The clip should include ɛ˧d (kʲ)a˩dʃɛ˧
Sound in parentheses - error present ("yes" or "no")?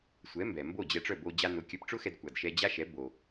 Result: yes